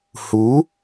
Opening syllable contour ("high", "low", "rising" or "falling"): rising